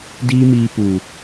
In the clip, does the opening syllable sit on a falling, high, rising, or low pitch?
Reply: high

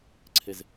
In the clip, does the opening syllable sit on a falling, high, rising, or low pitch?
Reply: low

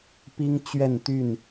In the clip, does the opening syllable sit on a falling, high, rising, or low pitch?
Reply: high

